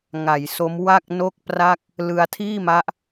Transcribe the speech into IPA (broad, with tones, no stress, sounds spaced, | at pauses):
ŋ a˩˦ j s o˦˥ m w a˥˩ k̚ n o˥˩ k̚ p r a˥˩ k̚ | l ɯ˧ a̯ tʰ iː˥˩ m a˦˥ ʔ